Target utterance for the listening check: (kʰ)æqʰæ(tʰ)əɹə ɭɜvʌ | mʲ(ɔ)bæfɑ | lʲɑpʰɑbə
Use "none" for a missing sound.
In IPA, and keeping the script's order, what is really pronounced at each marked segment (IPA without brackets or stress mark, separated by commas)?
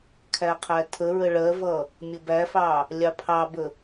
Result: kʰ, tʰ, ə